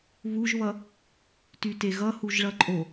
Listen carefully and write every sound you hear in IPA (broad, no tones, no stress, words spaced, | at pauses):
βuʒβʌ | tyteɣʌ huʒɭʌǃʼo